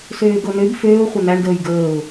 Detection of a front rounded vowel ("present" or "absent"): present